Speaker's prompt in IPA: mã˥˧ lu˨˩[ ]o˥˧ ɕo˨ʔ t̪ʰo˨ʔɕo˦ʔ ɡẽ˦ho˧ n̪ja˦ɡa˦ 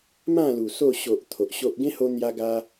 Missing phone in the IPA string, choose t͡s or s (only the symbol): s